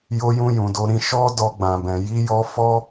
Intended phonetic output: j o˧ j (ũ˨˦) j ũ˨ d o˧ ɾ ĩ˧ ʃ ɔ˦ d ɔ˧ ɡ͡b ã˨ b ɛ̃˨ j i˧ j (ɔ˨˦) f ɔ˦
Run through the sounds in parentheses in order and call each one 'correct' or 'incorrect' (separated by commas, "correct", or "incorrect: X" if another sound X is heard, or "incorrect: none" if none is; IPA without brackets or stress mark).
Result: incorrect: ũ˧, incorrect: ɔ˧